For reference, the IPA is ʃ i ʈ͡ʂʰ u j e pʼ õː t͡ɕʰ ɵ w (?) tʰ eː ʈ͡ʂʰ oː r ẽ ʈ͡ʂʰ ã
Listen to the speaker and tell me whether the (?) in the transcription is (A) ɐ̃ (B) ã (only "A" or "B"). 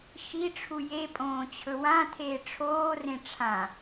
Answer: B